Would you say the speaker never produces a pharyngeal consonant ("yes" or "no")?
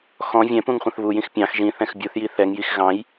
yes